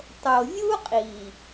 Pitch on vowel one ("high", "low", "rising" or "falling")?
low